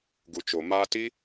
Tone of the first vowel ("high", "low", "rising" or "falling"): low